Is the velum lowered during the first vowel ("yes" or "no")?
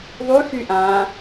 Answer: no